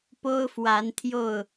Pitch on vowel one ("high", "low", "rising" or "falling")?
high